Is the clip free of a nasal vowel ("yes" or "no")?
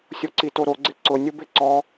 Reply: yes